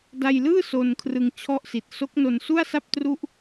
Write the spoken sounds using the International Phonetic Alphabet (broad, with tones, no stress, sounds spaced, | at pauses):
d a˧ j l ɯː˥˩ s o˧ n kʰ r ɯ˧ ŋ t͡ɕʰ ɔ˥˩ ʔ s i˨˩ t̚ s o˦˥ k̚ n o˧ n s u˥˩ a̯ s a˥˩ p̚ t r u˥˩ ʔ